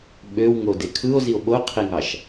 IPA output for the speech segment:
ɓ ø w ŋ o d e kʰ ɯ o̯ z i o̯ ɓ o qʰ i ŋ ɑ ʃ

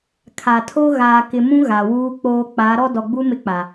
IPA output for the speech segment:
kʰ a˨ tʰ o˦ ɣ aː˨ k ɪ˨ m ũ˦ ɣ a˨ w uː˦ k͡p oː˦ k͡p a˨˦ ɾ ɔ˦ d ɔ˨ ɡ͡b u˦ m ɪ˦ k͡p a˨

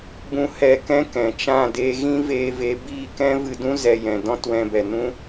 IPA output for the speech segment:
b ũ˧ h ɛ˧ k ɛ̃˦ k ɛ̃˨ t͡ʃ ã˦˨ d eː˧ ɣ ĩ˦ v eː˧ v e˨˦ b iː˦˨ k ɛ̃˦ v ɨ˧ d ũ˦ z ɛ˧ j ɛ̃˨ d ɔ̃˦ t w ɛ̃˧ b ɛ˨ n ũ˦

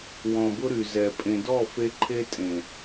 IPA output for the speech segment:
w ɔ̃˨ b ʊ˧ ɾ y˨ z ɛ˨ pʼ ẽ˨ d ɔ˦˨ f e˧ ǃʰ e˧ tʼ ẽ˨

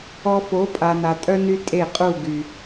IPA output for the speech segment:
ɔ˧ f o˨˦ pʼ a˨ n a˨ tʼ œ˦ n y˧ tʼ e˦˨ qʼ u˦˨ ɡ y˨

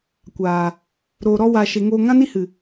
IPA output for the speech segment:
kʷ aː˨ | ɾ oː˨ ɾ ɔ˧ w aː˨ ʃ e˨ ŋ oː˧ ŋ ã˦ n i˦ h ɨ˨

